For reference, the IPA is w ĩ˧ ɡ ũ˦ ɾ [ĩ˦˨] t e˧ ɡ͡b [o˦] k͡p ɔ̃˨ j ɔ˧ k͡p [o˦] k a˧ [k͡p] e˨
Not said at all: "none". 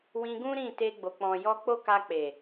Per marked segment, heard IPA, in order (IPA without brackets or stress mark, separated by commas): ĩ˦˨, o˨, o˦, k͡p